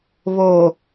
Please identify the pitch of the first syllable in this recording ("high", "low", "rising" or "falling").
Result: low